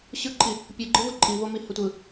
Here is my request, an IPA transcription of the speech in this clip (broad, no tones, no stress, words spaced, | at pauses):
ɕɯǃʼi | pʲɯɡ͡ǃɯ vɯǃʼivo mihətʷɯ